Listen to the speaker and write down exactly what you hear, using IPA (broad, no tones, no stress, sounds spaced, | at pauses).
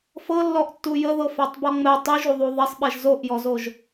f ɤ lː ɔ ʔ tː u j ə ð ɤ f a tˤ b ɔ ŋ͡m ɛ tˤ y ʒ u ðˤ u ðˤ ɛ sˤ ɓ ɛ ʒ z o ʔ j ɔ z o ʒ